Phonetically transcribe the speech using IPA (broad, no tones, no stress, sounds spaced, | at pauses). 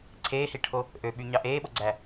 ǀʰ eː h i ʈʰ o | ʔ ø ɓ y ɲ ɑ ʔ eː ɓ o ɡ͡ǀ æ